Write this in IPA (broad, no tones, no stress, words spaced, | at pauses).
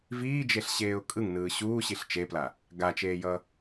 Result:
viːd͡ʒeɬɕeːʊ̯ kʼɯŋnɯː ɕuːɕiɬ t͡ʃepla | ɡat͡ʃeːjʌ